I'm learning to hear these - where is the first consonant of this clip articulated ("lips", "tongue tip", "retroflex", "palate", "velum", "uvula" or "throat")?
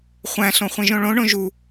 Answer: uvula